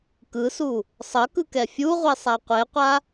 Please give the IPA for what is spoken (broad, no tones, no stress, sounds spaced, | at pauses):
k ɯ s u | sˤ ʌ k ɯ k ɛ fʲ u ʁʷ ɛ sˤ a qʷ e qʷ a